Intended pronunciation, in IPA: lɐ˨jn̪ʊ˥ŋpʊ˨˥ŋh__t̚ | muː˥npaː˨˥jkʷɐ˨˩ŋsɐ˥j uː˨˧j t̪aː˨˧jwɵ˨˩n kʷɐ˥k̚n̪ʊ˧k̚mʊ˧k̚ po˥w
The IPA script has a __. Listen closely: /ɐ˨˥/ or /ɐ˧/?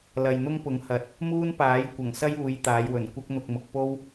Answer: ɐ˨˥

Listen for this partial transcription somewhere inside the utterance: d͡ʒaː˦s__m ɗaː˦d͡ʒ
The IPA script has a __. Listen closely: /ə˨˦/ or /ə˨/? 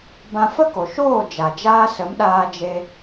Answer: ə˨˦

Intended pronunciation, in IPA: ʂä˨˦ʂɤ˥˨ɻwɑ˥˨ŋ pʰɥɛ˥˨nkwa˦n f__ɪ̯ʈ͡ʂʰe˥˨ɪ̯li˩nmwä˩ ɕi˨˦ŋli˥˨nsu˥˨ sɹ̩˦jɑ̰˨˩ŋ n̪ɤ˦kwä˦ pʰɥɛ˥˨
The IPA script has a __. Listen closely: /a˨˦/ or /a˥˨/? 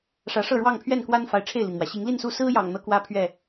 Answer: a˨˦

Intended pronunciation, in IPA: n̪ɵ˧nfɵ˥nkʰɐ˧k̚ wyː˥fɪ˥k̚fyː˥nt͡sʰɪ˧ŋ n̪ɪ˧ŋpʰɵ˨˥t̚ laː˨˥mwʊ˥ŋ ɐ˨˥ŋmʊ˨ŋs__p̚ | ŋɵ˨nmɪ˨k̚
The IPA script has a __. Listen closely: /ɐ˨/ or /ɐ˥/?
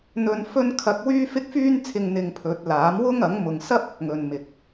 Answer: ɐ˥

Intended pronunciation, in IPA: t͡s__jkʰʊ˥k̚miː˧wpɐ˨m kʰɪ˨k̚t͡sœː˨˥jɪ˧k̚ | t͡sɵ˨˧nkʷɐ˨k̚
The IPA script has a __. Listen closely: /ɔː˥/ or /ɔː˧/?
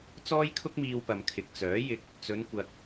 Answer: ɔː˥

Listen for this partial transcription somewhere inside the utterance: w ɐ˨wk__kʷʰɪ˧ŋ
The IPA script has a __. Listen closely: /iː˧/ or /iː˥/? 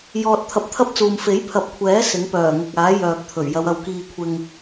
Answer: iː˧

